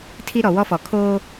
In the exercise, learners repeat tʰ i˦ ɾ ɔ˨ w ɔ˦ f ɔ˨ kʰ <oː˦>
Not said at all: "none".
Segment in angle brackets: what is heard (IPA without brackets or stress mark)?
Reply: oː˦